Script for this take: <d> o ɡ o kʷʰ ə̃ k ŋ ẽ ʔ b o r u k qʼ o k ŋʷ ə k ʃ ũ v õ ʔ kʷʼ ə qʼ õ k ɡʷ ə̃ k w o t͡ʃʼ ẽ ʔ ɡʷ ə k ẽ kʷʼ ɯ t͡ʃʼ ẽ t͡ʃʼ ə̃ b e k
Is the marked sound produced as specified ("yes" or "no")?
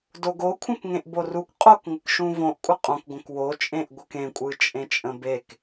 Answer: yes